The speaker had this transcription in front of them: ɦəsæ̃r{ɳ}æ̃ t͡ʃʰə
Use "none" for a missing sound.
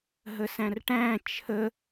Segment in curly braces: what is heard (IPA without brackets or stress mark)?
ʈ